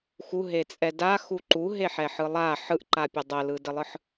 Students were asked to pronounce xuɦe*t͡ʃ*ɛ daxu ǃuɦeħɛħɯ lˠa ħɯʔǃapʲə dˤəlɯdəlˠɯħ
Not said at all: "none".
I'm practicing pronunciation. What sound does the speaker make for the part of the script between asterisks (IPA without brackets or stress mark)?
t͡sʼ